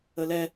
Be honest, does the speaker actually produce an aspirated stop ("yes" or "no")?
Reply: no